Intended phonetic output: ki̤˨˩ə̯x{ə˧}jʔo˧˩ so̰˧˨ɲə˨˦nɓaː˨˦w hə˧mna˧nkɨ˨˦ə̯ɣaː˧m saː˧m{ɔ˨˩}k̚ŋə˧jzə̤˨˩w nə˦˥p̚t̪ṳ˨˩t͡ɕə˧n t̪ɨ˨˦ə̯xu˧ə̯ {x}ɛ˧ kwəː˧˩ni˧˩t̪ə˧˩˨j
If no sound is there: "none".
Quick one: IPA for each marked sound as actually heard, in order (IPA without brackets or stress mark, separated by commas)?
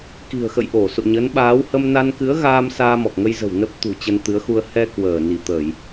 ə̰˧˨, ɔ˨˩, h